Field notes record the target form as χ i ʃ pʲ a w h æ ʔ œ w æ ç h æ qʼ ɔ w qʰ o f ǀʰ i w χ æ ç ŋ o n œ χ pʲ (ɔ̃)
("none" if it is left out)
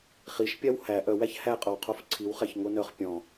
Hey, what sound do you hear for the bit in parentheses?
ɔ̃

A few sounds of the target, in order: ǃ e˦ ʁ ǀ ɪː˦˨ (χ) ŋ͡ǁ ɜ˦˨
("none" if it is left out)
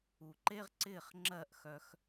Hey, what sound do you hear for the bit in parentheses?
χ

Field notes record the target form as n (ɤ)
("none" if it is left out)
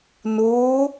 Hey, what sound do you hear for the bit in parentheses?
o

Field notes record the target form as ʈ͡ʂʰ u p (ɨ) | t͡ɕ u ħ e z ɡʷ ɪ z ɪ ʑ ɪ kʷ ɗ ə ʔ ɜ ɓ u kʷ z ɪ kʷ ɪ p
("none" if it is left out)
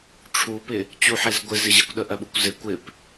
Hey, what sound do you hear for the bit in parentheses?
ɪ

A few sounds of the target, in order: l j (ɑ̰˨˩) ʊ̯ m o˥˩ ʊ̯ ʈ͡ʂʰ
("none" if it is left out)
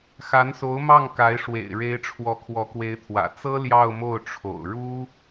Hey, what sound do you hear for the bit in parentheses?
ɑ˥˧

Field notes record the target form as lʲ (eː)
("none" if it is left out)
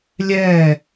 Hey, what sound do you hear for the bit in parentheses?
ɛː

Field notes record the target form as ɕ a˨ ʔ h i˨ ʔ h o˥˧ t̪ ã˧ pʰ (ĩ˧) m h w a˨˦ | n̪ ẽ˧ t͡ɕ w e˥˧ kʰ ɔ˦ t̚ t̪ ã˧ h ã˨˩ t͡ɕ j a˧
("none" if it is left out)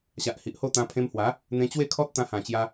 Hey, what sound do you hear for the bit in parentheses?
ẽ˧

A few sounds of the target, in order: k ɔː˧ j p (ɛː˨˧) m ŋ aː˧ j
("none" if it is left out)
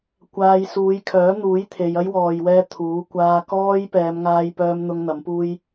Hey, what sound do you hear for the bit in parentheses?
ɛː˨˧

